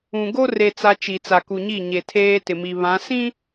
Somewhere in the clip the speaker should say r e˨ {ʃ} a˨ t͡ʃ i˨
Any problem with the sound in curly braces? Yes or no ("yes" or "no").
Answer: yes